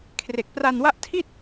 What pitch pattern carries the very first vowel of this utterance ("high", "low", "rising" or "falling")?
low